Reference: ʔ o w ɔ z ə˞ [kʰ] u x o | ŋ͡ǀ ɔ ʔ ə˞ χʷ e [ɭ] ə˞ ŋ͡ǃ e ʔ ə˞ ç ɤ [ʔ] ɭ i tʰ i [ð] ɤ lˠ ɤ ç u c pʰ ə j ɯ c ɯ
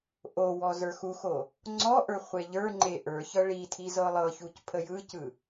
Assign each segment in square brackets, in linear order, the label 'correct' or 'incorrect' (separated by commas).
incorrect, incorrect, incorrect, incorrect